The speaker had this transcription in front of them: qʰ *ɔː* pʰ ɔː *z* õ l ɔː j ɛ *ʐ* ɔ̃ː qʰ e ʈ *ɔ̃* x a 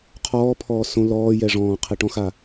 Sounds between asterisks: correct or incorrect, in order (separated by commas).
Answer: correct, incorrect, correct, correct